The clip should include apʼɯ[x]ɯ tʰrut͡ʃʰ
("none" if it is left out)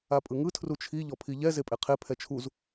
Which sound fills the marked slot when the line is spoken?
ŋ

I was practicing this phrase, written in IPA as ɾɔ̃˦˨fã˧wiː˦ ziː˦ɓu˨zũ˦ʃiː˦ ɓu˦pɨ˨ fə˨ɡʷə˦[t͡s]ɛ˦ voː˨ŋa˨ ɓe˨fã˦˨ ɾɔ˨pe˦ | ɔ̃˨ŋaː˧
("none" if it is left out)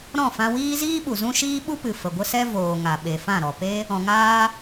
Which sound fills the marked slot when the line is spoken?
s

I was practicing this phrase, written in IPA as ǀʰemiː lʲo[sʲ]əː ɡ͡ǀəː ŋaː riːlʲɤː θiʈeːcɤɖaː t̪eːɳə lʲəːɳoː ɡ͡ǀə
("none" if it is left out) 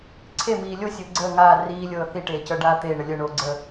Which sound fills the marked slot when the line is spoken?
sʲ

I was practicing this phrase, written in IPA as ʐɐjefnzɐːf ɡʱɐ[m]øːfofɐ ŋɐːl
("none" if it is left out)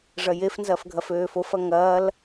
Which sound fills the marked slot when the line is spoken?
f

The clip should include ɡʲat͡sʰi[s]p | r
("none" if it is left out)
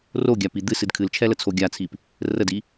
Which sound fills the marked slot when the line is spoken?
none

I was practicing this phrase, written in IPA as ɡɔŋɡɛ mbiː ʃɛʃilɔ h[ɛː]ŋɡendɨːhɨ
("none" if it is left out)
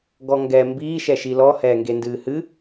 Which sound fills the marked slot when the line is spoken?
ɛː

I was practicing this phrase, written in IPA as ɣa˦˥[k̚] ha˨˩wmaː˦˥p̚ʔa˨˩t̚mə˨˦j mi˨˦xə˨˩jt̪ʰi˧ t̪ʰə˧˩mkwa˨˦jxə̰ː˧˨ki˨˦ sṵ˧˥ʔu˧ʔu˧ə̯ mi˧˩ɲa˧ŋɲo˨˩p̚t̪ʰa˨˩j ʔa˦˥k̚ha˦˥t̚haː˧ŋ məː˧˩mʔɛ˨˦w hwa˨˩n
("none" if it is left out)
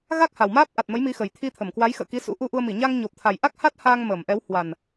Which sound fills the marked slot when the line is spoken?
k̚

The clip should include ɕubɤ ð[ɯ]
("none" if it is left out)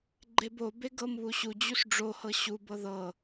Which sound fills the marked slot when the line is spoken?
ɤ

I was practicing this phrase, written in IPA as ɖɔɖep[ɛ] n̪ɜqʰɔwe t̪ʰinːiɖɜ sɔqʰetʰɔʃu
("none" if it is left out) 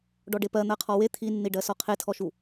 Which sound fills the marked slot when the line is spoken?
ɜ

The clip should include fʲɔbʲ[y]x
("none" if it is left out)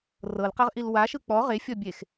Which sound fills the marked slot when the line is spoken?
e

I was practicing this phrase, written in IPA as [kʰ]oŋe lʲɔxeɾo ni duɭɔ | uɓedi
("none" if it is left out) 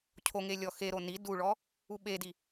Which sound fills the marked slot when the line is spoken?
cʰ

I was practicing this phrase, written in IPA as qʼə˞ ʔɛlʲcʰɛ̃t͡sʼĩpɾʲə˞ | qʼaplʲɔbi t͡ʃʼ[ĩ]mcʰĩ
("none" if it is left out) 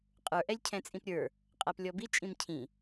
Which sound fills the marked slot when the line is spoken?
ĩ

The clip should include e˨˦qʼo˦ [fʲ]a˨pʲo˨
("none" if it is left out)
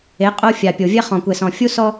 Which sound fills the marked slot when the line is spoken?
fʲ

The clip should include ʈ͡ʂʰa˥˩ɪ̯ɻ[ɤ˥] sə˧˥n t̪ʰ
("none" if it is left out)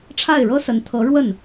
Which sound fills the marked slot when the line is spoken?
ɤ˥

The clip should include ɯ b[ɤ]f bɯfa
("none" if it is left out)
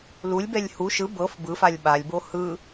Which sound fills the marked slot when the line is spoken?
ɤ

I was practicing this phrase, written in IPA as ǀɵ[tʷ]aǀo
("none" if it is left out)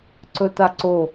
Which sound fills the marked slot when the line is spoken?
t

